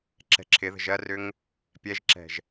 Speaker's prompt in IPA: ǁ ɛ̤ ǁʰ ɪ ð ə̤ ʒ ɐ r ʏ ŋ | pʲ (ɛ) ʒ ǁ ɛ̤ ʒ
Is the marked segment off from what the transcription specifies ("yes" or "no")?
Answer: no